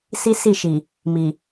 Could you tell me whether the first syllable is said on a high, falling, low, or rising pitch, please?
high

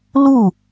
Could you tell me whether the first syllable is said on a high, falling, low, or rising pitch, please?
falling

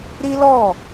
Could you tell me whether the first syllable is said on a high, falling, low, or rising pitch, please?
high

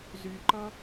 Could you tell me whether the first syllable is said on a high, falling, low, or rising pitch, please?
low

